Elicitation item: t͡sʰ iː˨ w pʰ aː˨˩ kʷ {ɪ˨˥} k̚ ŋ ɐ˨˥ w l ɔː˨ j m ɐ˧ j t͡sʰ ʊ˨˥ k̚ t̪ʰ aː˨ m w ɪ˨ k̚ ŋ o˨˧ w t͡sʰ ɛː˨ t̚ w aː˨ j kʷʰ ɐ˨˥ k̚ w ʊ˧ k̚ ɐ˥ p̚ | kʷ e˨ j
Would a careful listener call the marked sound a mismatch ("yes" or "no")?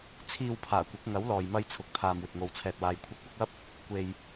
no